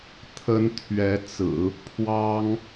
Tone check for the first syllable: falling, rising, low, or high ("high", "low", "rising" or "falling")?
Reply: high